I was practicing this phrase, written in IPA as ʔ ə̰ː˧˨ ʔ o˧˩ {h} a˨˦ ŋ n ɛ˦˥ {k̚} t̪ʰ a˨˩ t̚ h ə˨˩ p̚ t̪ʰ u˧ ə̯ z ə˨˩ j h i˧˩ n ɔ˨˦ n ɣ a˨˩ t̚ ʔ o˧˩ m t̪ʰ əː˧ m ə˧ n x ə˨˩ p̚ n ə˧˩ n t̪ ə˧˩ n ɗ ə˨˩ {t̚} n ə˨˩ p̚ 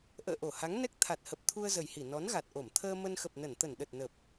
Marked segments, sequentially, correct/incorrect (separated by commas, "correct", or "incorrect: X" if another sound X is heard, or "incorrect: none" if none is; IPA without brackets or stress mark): correct, correct, correct